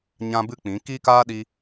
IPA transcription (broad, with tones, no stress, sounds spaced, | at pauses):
ɲ ã˦ b ɨ˦ k͡p ĩ˨˦ k i˦ k aː˦ ɗ i˧